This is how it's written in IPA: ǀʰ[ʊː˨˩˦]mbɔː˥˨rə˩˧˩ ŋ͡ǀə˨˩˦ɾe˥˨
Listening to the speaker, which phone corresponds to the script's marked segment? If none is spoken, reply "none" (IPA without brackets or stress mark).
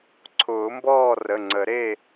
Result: ʊː˨˩˦